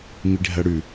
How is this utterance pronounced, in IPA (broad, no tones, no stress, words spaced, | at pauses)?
miɖʱɐɽʉ